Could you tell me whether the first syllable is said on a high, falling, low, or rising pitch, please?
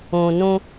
low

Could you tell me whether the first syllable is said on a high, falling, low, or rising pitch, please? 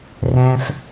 low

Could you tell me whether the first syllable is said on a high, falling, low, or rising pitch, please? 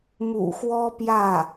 low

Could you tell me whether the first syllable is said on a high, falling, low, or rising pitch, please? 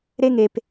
high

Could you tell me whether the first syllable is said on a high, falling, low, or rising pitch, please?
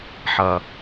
low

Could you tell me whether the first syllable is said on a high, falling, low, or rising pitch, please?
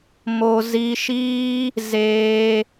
low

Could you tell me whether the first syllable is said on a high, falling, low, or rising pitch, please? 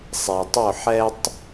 low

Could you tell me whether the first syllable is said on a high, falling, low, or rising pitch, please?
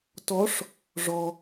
rising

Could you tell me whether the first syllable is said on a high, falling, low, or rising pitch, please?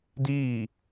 falling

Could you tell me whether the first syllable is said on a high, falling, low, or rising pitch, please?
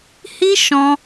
high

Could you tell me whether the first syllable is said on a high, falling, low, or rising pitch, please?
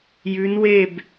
rising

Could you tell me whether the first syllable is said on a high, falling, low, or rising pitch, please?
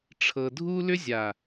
low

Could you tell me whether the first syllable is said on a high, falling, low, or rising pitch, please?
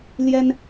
high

